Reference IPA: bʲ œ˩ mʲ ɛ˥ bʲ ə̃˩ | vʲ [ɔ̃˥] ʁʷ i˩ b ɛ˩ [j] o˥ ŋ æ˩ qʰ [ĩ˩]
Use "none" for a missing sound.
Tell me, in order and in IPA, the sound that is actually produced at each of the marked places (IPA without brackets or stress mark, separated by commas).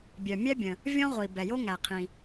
ɔ̃˥, j, ĩ˩